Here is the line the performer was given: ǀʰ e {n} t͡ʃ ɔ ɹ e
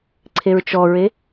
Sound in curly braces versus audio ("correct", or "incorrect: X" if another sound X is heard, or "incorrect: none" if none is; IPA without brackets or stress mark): incorrect: ɹ